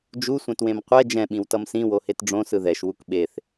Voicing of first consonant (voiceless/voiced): voiced